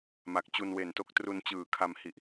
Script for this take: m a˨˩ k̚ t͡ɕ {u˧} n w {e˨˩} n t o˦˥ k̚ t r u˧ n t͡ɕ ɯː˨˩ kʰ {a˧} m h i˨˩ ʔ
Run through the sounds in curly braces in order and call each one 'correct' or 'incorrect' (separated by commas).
correct, correct, correct